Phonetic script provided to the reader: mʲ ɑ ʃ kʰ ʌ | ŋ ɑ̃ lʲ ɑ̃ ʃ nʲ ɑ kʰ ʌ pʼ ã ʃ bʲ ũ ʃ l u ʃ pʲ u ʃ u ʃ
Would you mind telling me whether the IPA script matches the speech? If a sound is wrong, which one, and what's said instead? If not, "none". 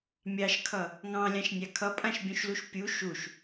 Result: none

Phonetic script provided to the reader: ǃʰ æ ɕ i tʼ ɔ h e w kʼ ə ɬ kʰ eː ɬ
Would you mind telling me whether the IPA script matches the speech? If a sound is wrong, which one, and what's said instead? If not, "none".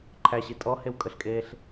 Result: kʰ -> kʼ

